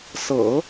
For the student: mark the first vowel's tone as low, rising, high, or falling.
low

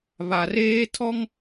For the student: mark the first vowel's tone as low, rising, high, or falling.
low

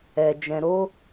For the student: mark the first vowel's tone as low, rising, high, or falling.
low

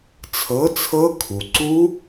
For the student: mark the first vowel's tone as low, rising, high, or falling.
rising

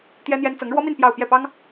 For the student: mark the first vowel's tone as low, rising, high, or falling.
high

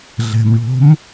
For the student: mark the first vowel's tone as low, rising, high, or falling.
low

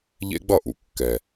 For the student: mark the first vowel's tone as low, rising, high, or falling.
high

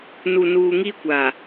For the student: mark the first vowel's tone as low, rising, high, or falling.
low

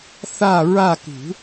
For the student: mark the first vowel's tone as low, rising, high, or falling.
falling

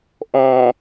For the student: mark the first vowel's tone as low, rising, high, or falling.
low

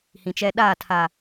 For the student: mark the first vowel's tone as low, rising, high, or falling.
low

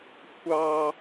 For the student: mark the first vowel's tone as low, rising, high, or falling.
high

